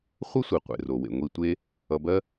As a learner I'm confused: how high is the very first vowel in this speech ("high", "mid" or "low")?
mid